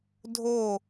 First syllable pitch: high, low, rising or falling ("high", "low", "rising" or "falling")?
falling